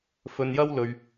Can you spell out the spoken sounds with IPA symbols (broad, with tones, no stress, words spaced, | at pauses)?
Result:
fɵ˧njɐ˥w lɵ˧ɥ